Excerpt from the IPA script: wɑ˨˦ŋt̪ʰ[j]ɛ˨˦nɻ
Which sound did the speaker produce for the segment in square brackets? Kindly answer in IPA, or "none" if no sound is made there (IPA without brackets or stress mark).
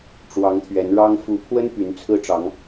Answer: ɥ